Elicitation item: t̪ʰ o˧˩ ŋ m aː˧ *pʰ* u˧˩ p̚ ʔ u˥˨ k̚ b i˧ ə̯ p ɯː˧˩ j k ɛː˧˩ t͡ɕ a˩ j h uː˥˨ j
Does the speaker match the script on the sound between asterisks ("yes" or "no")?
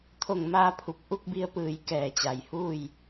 yes